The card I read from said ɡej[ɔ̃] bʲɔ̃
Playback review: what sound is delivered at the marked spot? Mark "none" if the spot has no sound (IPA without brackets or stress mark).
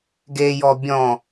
ɔ